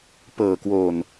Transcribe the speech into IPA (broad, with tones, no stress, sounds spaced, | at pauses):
p ɤː˨˩ k w oː˨˩ n